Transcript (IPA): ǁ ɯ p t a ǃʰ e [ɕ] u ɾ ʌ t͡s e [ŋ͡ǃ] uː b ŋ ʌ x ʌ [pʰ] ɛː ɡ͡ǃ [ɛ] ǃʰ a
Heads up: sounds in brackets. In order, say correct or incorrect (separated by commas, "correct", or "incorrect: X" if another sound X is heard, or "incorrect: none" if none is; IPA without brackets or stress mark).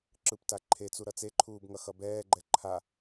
incorrect: t͡s, incorrect: ǃʰ, incorrect: b, correct